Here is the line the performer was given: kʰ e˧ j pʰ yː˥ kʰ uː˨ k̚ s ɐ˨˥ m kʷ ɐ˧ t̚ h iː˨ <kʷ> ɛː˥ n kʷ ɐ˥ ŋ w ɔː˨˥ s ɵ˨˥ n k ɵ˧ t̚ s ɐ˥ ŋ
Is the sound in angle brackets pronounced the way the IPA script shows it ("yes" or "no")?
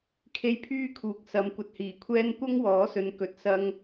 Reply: no